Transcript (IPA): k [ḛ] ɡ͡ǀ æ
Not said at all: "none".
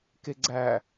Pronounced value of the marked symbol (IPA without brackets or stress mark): e